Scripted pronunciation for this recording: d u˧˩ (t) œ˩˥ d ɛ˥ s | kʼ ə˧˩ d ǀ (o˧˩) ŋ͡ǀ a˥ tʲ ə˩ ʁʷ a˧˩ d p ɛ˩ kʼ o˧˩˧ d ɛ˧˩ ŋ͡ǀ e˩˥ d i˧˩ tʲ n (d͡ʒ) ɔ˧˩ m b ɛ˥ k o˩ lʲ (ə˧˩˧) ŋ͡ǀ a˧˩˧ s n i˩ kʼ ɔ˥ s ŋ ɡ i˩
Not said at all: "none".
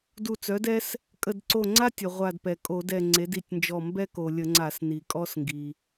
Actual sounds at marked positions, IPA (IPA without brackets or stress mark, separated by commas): t͡s, o˧˩, d͡ʒ, ə˧˩˧